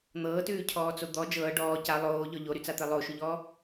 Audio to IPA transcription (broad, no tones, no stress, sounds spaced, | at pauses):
n̪ ɤː t ʉː cʰ ɔː t͡s o d̪ ɔ d͡ʒ ɤː ɖ ɔː c a lˠ oː ʎ ɔ ʎ o ɾ y t͡s a t̪ e lˠ o ʃ ʉ ʎ ɔː